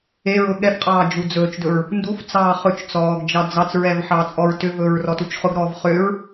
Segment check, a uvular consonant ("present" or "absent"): present